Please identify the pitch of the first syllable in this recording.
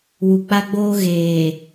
low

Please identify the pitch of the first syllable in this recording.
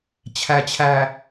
low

